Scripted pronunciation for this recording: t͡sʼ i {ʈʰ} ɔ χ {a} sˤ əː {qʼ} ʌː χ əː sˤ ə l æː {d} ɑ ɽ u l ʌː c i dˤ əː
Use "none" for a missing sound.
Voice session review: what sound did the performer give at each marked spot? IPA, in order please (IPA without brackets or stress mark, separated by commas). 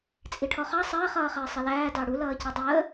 ʈʰ, ɑ, χ, d